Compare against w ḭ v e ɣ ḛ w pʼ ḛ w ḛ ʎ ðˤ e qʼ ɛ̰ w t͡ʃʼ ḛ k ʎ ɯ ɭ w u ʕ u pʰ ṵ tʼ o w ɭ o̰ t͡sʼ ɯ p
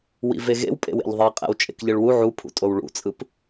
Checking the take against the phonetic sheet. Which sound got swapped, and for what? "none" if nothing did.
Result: o̰ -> ṵ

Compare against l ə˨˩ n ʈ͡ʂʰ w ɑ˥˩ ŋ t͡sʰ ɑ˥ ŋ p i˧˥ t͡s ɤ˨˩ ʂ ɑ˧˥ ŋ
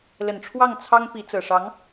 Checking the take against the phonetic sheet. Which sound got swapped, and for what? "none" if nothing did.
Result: none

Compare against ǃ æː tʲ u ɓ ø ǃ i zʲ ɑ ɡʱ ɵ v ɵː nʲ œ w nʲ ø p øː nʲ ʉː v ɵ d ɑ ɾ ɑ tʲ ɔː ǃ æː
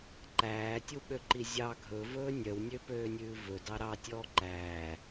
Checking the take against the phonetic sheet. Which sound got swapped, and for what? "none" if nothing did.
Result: none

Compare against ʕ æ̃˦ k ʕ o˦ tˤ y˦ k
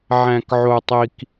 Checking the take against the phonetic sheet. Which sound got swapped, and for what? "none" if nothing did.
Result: y˦ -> i˦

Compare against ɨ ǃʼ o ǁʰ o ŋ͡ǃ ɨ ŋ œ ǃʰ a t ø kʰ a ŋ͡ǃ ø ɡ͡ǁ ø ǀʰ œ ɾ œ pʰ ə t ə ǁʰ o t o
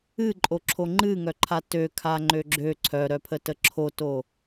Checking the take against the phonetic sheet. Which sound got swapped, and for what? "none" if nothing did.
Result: none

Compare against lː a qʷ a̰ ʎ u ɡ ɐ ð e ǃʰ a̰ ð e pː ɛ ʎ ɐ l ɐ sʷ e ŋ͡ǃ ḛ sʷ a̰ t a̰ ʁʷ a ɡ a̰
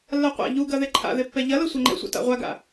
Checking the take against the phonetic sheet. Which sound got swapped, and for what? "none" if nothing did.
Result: none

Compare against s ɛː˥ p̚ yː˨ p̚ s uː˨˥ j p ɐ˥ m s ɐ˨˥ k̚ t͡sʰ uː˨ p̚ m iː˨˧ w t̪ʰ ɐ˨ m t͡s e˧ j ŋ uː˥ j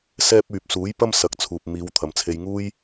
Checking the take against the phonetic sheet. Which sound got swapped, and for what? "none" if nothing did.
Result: t͡s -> t͡sʰ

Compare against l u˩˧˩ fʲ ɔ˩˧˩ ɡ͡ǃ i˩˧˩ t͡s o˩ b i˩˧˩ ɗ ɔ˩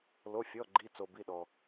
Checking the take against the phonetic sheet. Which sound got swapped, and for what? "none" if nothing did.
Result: u˩˧˩ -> o˩˧˩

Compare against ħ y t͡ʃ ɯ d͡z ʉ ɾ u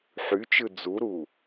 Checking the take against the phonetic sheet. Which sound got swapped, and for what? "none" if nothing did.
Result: ʉ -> u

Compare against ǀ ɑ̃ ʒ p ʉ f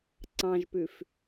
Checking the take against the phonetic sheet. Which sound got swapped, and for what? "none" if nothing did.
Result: none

